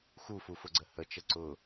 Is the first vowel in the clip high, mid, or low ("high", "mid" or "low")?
high